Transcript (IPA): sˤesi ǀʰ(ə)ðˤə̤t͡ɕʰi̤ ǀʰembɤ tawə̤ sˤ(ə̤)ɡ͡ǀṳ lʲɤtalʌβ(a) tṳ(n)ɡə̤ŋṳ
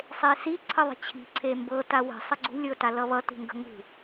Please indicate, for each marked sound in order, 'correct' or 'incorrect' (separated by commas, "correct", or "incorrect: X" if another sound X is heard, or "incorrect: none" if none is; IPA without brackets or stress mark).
correct, incorrect: ə, incorrect: ʌ, incorrect: ŋ